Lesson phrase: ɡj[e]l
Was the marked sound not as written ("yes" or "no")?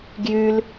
yes